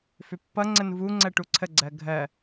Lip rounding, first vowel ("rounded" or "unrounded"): rounded